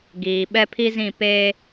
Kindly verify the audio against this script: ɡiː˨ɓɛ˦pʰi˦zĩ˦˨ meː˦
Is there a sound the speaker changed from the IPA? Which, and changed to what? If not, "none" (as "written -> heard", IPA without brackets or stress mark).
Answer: m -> p